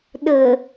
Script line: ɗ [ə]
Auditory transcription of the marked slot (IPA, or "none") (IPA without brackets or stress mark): ə